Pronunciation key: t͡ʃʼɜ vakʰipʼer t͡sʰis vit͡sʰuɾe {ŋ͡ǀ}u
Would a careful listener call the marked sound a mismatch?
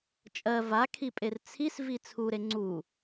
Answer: no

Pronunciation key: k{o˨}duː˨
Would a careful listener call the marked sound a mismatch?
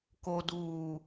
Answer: no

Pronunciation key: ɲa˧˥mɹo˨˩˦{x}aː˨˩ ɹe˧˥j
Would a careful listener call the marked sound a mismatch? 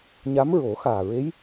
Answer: no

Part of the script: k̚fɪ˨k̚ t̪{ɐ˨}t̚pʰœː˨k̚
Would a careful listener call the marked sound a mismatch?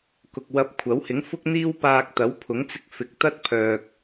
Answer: yes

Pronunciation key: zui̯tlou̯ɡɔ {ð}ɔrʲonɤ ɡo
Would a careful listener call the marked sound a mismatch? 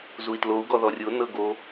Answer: no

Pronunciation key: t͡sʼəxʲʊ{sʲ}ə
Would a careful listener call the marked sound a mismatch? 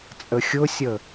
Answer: no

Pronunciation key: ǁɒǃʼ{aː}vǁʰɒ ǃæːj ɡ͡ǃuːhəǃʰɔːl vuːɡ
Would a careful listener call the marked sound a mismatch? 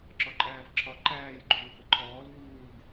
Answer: yes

